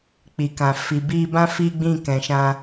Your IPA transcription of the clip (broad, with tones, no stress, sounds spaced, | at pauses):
k͡p i˨ k ã˨ f i˨ b i˧ b ã˦ f i˦ ɡ͡b ĩ˦˨ k ɛ̃˨ ʃ ã˧